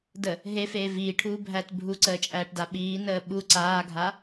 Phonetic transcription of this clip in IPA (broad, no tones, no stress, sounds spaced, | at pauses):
d ə | ɦ e f eː v iː ʈʰ uː bʱ æː t bʱ u ǀ əː t͡ʃʼ æː ʈ d a ɓ iː n əː ɓ u ǀ aː ɡʱ a